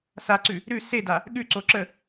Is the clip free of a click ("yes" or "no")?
no